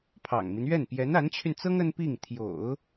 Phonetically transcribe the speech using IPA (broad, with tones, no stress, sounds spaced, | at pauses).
pʰ ɑ̰˨˩ ŋ m i˦ n ɥ ɛ˥˩ n p j ɛ˧˥ n a˧˥ n t͡ɕʰ y˧ n t͡s ɤ˥ ŋ ə˥ n p i˥˩ ŋ t̪ʰ j o̰˨˩˦ ʊ̯